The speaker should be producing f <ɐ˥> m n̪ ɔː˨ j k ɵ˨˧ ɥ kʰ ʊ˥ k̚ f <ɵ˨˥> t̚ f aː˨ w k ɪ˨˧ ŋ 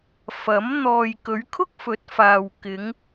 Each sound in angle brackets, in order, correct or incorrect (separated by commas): incorrect, correct